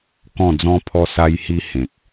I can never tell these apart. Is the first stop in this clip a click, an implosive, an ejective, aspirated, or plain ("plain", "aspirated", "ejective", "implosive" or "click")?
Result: plain